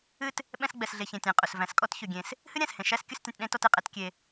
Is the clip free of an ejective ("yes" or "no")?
no